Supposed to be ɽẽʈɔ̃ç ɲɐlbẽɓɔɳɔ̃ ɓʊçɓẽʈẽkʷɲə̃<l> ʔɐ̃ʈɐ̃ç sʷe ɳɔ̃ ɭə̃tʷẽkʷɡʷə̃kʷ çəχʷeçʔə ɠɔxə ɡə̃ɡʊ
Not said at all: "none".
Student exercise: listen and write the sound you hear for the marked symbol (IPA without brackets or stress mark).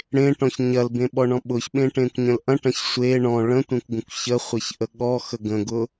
l